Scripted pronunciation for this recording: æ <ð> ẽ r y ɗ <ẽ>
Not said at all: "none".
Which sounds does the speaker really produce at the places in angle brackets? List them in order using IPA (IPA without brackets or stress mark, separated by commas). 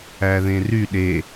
ð, e